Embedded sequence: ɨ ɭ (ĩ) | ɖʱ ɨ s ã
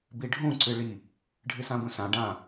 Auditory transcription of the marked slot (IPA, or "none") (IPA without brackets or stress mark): i